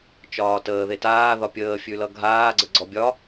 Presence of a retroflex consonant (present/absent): absent